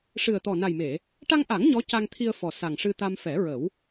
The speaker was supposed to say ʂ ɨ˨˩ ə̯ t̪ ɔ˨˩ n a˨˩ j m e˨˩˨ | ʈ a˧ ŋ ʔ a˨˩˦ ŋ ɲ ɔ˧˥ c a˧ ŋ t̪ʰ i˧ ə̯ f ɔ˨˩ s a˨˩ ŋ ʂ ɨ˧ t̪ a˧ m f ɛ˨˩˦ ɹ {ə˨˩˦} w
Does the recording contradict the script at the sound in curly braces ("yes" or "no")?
no